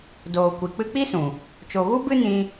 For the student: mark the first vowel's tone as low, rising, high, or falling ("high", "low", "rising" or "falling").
low